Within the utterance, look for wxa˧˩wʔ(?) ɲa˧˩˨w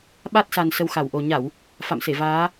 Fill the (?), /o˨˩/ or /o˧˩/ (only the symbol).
o˨˩